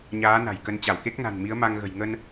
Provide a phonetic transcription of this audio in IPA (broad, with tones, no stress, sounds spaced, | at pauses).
ɲ aː˨˦ n a̤˨˩ j k ə˨˦ n t͡ɕ a˧˩ w k e˦˥ k̚ n a̤˨˩ n m i˨˦ ə̯ m a˧ ŋ ɣ ə̤˨˩ j ŋ ə˧ n